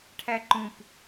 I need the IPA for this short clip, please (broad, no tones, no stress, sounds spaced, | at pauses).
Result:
ʈʰ æ ǃ ũ p